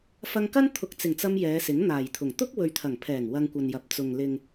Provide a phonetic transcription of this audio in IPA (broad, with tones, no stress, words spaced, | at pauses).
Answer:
fɐ˧ŋkɐ˥n t̪ʰʊ˨k̚t͡sɪ˨˩ŋt͡sɐ˧m jɛː˨˧sɪ˨˥ŋ n̪aː˨˩jt̪ʰʊ˨˩ŋ t̪ʊ˥k̚wɵ˨ɥt̪ʰɐ˨˩ŋpʰɛː˨˩ŋ wɐ˧ŋkʷɐ˨njɐ˨p̚ t͡sʊ˨ŋ lɪ˨ŋ